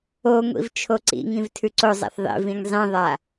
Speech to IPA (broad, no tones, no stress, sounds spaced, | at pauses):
o ŋʷ ḭ v t͡ʃʰ o ǀ ḭ ŋ ĩ v tʰ ʉ ǀ o zˤ a̰ θ ðˤ ḭ v ĩ ŋ zˤ ĩ ðˤ a